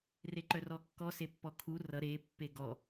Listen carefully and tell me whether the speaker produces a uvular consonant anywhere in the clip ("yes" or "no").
no